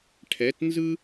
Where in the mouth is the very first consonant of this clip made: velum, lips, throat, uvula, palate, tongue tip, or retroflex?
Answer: retroflex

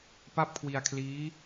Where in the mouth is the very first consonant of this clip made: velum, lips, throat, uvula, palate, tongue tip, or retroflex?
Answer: lips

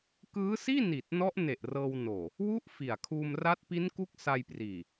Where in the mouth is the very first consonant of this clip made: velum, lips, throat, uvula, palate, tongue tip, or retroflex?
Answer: velum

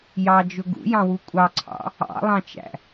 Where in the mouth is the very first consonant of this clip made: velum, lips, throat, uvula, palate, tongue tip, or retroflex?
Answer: palate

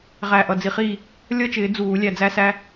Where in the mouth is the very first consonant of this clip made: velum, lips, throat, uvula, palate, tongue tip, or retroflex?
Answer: uvula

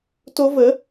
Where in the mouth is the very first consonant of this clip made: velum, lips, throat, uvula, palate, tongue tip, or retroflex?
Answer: tongue tip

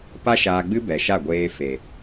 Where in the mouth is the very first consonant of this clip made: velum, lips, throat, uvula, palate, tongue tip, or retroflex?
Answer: lips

